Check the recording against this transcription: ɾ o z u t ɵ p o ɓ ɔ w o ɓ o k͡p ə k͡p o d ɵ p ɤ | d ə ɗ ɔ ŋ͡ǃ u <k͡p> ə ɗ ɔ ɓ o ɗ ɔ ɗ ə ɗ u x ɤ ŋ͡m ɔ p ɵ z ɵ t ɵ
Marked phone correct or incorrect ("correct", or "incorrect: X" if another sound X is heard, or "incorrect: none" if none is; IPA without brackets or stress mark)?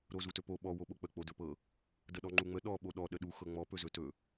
incorrect: ŋ͡m